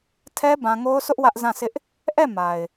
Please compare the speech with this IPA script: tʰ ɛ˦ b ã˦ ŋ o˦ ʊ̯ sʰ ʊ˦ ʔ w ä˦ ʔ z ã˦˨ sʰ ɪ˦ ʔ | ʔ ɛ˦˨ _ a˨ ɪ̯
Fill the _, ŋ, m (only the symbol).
m